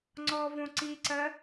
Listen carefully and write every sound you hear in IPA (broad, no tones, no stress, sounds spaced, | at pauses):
ŋ͡ǀ ɔ v õ ǀ i ǀ ɜ